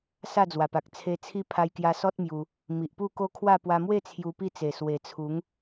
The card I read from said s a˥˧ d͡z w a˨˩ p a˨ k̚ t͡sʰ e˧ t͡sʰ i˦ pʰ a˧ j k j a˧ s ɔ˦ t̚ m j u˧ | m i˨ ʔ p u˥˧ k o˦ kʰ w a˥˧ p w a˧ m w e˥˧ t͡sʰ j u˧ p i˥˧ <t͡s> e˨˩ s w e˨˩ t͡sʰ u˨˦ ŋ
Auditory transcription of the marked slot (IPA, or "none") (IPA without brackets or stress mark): t͡s